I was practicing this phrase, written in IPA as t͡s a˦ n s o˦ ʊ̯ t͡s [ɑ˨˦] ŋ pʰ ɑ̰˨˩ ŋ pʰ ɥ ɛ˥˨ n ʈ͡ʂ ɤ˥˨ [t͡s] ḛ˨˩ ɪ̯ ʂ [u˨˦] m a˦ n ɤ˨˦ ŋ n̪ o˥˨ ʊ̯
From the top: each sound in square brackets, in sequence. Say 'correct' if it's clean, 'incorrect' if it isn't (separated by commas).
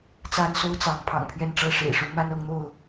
correct, incorrect, correct